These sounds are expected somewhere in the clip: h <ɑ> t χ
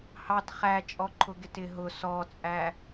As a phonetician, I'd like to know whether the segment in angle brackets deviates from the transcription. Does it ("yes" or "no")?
no